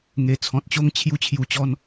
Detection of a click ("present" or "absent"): absent